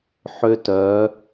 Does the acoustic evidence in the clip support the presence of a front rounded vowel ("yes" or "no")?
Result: yes